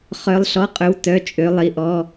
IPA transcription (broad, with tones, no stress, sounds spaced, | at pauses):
χ œ˧˥ lˠ ɬ ɔ˧˥˧ qʼ ɵ˧˥ w t œ˧˥˧ t͡ʃʼ ø˧˥ lˠ i˧˥ ʔ ɔ˧˥˧